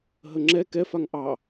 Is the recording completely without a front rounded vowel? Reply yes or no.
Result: yes